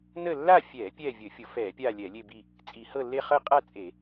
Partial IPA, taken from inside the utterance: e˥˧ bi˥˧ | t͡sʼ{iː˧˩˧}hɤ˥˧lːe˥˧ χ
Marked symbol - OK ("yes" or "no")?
no